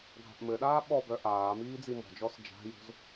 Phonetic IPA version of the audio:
ɡʱ a̤ ʔ m ɘ ɗ aː ɓ ɔ b œ ʔ aː m iː d͡z i m ɔ̤ d͡ʒ ɔ s d͡ʒ a̤ j o̤ z

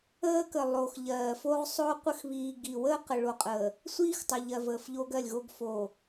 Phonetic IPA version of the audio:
əː˦ k ə˨ lˠ oː˨ x ʎ ɜː˨ f o˦ ʁ sˤ oː˦ qʷ ə˦ x β iː˨ ɡ i˨ w əː˦ q ə˨ ɭ o˨ qʼ əː˨ | sʷ iː˦ x tˤ ə˨ ʎ ɜ˨ v əː˨ f ʎ o˦ ɡ ɜ˦˨ lʲ ɣ o˦ ɡ f o˨

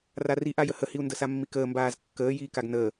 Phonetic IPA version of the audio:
r a r i ʔ a j ə h ə h i u̯ n d ə s a mː i k əː m b aː z kː əː j iː k a ɡ n əː

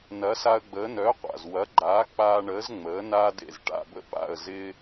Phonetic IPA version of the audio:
n ɐ˩˥ s a˧ ə̯ ɡ͡b əː˩˥ n œ˩˥ qʷ a̰˩ z w ɐ˩˥ ɡ͡ǃ aː˩˥ k͡p aː˧ ɳ əː˩˥ z ŋ͡m əː˩˥ n aː˥ d ḛ˥˩ z ʈ a̰˥˩ b ə̰˥ p a̰˥˩ ə̯ z ɪː˥

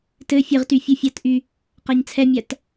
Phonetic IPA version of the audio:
t ɘ fʲ ɘ ʁ t y fʲ ɯ fʲ a t ʔ y | q a ɲ t͡sʰ ɛ mʲ a t

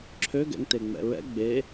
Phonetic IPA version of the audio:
ǁʰ ø ɡ ɛ̰ ŋ t e ŋ͡m ɛ̰ ɹ ɛ̰ ɡ͡b e

